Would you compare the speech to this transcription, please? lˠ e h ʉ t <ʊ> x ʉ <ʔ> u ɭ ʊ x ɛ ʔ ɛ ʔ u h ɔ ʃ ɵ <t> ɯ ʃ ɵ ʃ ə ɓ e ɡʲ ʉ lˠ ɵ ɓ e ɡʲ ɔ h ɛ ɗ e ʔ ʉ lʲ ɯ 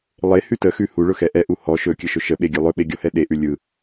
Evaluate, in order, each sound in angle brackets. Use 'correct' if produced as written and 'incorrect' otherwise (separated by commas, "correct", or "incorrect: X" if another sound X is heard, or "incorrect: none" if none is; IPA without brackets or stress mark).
incorrect: ə, incorrect: h, incorrect: kʲ